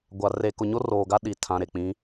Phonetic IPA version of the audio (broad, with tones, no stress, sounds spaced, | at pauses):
ɡʷ a˨ r e˨ k ʊ˨ ɲ o˦ r oː˨ ɡ a˦ ɗ i˨ tʰ ã˨ ɾ e˨ k͡p ĩ˨˦